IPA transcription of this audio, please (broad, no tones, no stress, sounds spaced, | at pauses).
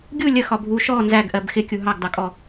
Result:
ɡʲ u lʲ ə x ɒ bʱ u ʃ ɔ n z æ ɡ ʔ ɜ b x ɪ kʲ u ɦ ɑ ɡ d ɑ kʼ ɔ